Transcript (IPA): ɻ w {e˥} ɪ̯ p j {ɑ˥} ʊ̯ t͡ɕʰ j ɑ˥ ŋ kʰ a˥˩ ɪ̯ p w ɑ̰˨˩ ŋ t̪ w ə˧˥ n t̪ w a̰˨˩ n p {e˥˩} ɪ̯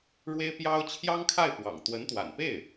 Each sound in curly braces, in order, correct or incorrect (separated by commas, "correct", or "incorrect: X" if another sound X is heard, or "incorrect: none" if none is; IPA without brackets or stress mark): correct, correct, correct